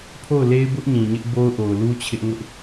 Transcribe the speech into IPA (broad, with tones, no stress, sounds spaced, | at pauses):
pʰ o˦˨ ʊ̯ l e˦ ɪ̯ b ʊ˦ ʔ ɲ ĩ˨ ɲ ɪ˦ ʔ b o˦ ʊ̯ ʔ o˨ ʊ̯ l u˦ t͡ɕʰ ɪ˦ ʔ ŋ ʊ˦ ʔ